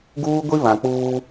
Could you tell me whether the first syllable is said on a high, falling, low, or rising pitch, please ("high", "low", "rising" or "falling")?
high